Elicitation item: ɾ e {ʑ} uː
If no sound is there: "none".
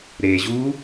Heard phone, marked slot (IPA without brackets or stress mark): ʑ